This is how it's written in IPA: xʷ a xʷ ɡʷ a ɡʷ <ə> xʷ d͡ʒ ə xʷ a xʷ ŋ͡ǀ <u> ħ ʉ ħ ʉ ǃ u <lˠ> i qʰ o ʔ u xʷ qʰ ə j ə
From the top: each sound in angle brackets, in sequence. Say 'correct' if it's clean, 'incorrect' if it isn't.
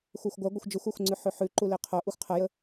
correct, incorrect: ʉ, incorrect: l

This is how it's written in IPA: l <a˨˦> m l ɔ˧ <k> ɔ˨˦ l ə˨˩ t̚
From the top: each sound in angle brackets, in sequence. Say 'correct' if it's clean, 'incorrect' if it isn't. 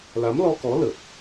correct, correct

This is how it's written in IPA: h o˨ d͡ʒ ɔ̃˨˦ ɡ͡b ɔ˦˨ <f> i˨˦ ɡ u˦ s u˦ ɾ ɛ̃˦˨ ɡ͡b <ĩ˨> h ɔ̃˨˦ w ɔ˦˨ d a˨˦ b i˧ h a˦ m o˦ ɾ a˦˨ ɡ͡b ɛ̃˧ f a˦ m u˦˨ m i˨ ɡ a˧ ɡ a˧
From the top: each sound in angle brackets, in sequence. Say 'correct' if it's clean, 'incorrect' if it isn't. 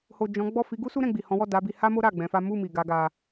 correct, incorrect: i˨

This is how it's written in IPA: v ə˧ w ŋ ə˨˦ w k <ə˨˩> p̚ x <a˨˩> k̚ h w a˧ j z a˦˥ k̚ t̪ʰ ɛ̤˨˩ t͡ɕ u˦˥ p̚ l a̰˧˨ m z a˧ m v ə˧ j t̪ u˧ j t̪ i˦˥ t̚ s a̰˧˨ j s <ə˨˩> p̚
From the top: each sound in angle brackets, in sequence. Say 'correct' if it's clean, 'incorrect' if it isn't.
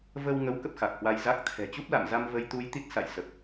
incorrect: ə˦˥, correct, correct

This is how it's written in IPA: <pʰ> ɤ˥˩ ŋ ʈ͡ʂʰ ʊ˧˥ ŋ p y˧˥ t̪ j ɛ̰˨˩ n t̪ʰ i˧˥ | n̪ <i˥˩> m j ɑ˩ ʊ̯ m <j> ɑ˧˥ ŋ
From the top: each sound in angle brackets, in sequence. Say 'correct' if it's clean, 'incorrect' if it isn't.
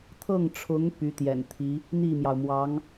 incorrect: t̪ʰ, correct, incorrect: w

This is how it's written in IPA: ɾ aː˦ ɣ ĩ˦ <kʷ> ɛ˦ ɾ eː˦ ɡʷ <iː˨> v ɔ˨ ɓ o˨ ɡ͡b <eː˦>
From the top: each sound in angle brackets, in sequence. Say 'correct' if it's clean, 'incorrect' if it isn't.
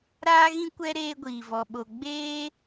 correct, correct, correct

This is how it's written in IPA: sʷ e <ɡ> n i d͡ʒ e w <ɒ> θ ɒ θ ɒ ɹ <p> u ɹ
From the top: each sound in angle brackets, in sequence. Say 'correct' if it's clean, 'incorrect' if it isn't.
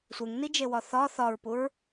incorrect: ŋ, correct, correct

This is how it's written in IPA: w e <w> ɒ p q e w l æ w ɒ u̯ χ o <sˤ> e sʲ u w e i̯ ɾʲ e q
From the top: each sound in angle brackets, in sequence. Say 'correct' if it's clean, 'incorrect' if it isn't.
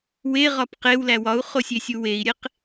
incorrect: ʁ, incorrect: sʲ

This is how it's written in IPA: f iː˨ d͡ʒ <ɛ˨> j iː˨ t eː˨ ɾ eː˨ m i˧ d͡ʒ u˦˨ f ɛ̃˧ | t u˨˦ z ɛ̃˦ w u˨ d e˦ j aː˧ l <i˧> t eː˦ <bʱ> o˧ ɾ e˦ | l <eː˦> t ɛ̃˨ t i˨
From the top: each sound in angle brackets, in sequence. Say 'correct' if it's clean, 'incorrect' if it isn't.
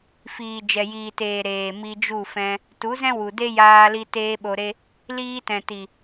correct, correct, incorrect: ɓ, incorrect: iː˦

